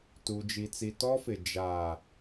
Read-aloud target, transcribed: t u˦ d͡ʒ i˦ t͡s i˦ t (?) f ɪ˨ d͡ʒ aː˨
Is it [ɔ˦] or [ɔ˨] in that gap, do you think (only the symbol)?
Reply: ɔ˦